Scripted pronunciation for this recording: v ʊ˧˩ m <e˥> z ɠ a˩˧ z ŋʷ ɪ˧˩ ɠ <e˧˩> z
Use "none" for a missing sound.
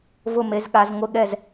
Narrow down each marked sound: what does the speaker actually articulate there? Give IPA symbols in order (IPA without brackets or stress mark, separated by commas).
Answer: e˩˧, ɛ˧˩